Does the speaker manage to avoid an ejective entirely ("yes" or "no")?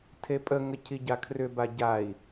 no